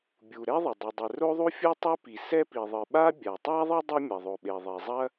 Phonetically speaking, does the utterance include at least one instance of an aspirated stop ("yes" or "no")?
no